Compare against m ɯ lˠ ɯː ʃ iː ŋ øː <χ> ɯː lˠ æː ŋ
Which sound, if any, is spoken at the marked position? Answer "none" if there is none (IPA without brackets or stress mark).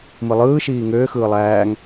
x